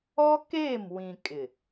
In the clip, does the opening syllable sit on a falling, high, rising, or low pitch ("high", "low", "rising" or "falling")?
high